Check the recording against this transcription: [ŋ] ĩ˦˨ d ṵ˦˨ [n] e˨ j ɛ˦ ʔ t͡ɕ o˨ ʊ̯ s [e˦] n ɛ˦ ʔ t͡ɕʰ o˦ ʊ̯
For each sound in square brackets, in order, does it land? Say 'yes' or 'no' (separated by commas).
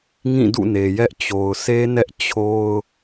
yes, yes, yes